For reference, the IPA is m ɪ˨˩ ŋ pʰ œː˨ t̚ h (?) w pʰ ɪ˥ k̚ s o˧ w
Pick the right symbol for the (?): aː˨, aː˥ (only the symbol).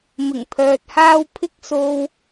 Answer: aː˥